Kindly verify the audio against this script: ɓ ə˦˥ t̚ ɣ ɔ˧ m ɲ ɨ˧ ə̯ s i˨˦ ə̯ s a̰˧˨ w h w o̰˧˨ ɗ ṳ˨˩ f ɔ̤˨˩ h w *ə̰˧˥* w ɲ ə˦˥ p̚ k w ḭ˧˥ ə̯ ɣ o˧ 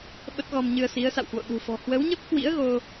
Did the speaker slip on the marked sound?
yes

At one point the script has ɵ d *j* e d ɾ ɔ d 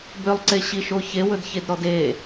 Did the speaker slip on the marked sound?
yes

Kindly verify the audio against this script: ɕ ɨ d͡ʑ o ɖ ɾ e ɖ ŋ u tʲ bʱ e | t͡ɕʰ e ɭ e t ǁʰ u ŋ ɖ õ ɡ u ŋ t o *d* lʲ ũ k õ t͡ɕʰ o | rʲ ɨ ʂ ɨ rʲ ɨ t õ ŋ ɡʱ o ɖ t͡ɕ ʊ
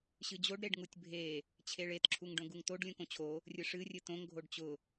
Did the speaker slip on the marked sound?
yes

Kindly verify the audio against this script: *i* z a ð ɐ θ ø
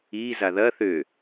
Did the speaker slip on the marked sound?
no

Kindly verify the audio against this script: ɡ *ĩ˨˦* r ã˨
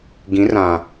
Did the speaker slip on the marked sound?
no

